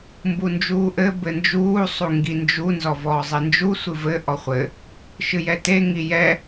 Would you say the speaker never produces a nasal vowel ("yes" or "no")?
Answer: yes